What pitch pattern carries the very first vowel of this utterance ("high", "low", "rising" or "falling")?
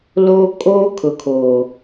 high